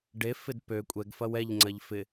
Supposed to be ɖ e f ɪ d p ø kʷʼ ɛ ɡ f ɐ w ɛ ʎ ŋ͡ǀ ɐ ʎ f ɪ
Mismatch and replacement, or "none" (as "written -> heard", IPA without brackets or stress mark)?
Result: none